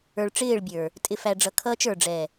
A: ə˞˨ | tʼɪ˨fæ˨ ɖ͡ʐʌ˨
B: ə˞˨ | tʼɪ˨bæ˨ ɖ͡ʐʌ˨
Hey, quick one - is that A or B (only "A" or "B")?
A